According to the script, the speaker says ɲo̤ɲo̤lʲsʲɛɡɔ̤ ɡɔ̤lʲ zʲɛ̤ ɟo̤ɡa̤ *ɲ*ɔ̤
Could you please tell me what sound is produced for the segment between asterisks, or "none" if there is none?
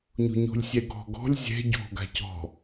c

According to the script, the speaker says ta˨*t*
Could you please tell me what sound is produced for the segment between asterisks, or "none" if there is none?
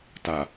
none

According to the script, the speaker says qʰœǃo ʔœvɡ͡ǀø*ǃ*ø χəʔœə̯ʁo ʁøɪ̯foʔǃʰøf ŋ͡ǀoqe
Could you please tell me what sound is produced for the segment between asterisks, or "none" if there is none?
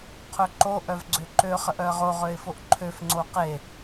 ǃ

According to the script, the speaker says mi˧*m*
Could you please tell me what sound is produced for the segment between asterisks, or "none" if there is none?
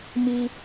none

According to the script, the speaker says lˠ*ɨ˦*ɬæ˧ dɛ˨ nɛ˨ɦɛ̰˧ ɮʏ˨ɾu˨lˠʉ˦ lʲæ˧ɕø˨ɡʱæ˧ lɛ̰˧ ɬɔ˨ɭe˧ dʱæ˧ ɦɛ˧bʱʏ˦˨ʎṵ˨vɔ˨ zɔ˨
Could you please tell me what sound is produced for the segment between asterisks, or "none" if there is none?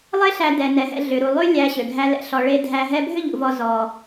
e˦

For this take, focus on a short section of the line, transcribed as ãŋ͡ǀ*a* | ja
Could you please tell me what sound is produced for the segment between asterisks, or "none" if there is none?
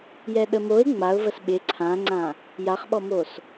ã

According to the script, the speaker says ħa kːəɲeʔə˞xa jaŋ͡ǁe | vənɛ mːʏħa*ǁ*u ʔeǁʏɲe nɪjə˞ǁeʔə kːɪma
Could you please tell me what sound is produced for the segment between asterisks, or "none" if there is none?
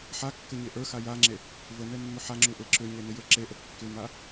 ŋ͡ǁ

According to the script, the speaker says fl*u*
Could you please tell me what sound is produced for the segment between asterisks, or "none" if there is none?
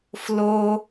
o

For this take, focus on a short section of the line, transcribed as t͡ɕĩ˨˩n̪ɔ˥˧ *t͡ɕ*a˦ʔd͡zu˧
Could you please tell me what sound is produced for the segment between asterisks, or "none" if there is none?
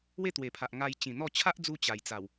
t͡ɕʰ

